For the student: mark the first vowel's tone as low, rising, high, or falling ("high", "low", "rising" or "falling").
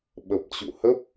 low